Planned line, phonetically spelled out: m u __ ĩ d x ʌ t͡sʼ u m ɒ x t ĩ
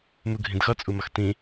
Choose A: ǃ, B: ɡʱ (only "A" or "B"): B